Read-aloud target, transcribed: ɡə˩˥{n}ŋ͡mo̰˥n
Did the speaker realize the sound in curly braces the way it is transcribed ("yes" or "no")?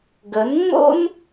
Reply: yes